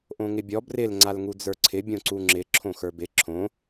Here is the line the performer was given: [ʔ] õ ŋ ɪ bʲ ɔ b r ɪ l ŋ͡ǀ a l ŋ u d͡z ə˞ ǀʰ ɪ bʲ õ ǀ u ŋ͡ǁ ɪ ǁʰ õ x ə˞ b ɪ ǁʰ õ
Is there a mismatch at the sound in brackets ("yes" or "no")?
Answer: no